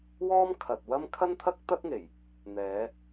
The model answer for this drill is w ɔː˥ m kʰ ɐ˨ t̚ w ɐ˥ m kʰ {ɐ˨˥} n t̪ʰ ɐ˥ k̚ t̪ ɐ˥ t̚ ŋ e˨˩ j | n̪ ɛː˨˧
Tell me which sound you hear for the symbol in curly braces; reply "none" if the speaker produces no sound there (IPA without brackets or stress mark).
ɐ˥